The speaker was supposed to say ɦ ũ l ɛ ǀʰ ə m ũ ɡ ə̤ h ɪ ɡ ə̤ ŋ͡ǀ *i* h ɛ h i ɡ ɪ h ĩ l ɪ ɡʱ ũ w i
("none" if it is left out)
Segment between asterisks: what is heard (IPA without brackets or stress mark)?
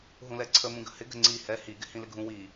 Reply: i